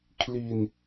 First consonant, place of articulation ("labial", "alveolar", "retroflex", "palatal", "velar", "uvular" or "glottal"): velar